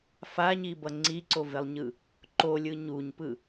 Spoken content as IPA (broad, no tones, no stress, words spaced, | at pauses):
faɲibʌ ŋ͡ǀiǀovelˠɲɯ | ǃolʲɯ ɲuɲpɯ